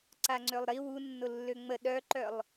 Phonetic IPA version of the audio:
ǀ a ŋ͡ǀ ø lˠ ɾ i w u nː ʊ lː ø ŋ͡m ə ɗ œ ǃ œ lˠ

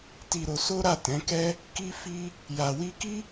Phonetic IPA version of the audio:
t i˧ ɾ o˧ s o˦ ɾ a˦˨ t ɛ̃˨˦ k ɛ˦ | k i˦ f i˦ | j a˧ w i˦ k i˦

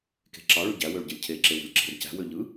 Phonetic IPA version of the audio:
k e̤ ǁ ɑ ɭ y ɟ æ w ø ɭ ɟ ɯ lʲ cʰ e ǁ e w o̤ lʲ ǁ e̤ r c æ̤ w ø ʎ ɯ

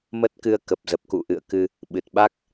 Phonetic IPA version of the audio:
m ə˦˥ t̚ k ɨ˧ ə̯ k ə˨˩ p̚ z ə˨˩ p̚ k ṵ˧˨ ʔ ɨ̰˧˨ ə̯ k ɨ˧ | ɓ ɨ˨˩ t̚ ɓ a˦˥ k̚

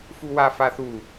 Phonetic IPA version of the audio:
f u w a f a θ u

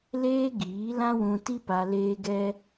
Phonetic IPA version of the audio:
l eː˦ ɡ iː˨˦ l ã˦ w ũ˧ t i˦ p a˧ l eː˦ ɡ ɛ˦

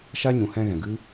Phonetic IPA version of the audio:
ʃ a˦ ɲ ũ˨ h ɛ̃˧ ɣ ɛ̃˨ ɡ ɨ˦

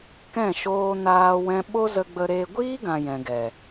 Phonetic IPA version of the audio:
k ɛ̃˦˨ ʃ oː˧ n aː˧ w ɛ̃˧ ɓ o˦ z ə˧ ɡ͡b ə˧ ɾ eː˧ ɡʷ iː˦ ɡ ã˨ j ɛ̃˨ ɡ ɛ˨

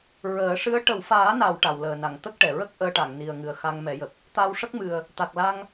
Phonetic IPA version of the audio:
ɹ əː˨˩˦ ʂ ɨ˧˥ ə̯ ʈ ə˨˩˨ w f aː˨˩˦ n a˨˩˨ w ʈ a˨˩˨ w l əː˨˩ n a˨˩˨ ŋ t̪ ə˦˥ k̚ ʈ ɛ˨˩˨ ɹ ə˦˥ k̚ ʔ əː˧ ʈ a˨˩˨ ŋ n i˨˩ ə̯ ŋ ɨ˨˩ ə̯ x a˧ ŋ m ɛ˨˩˦ j ə˨˩ k̚ | t̪ a˧ w ʂ ə˦˥ k̚ m ɨ˨˩ ə̯ | t̪ a˨˩ k̚ l a˧ ŋ

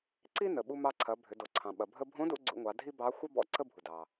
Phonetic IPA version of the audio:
ǀ i˥ n ə˩ ɓ u˧ m ɑ˧ ǀʰ ɐ˩˧ bʱ ʏ˩˧ d o˩ ǀʰ ɑ̃˩ ɓ ɐ˩ bʱ ə˧ bʱ õ˧˥ d ṵ˧ ɡ͡ǀ ṵ˧ ŋʷ ɑ˩˧ dʱ i˥ b ɑ˧˥ xʷ ɐ˥ b ɔ̰˧˥ ǀ ə˥ bʱ u˩ d ɑ˩

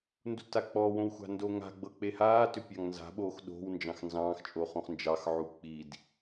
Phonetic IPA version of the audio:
n d u t a k͡p ɔ w õ w xʷ a̤ n d o ŋ a̤ ɡ͡b ɤ k͡p e h aː t ʏ pʲ ɑ ŋ n z a̤ ɓ oː x ɗ o̤ w n d͡ʒ ɑ̃ x n z ɑ̃ː x t͡ʃʼ o χ õ χ n d͡ʒ ɑ x ʕ u k͡p i d

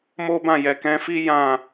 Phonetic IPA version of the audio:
m o˦ b ã˦˨ j ɛ˨ k ɛ̃˧ f i˦ j ã˦˨

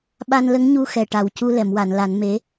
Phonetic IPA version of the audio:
ɓ a˧ n l ə˧˥ ŋ ɲ u˧ x ɛ˨˩ ʈ a˨˩ w c u˧ l ɛ˨˩˨ m w a˨˩˨ n l a˨˩˦ n m e˧˥

